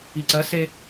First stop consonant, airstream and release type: click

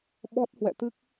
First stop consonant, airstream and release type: implosive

